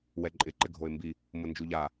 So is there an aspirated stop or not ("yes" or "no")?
no